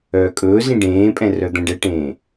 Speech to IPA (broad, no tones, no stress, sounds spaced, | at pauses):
œː kʼ ɵː z ĩ ɖ ẽː pʼ ɛ̃ r œ d̪ ɛ̃ ɖ ɛ ʈ ẽː